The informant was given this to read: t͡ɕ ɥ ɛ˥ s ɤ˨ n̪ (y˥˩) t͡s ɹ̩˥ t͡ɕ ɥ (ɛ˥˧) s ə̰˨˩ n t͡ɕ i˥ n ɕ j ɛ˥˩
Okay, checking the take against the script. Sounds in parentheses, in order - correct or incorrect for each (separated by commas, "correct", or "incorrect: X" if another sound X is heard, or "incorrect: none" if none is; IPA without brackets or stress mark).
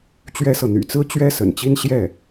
incorrect: y̰˨˩, incorrect: ɛ˥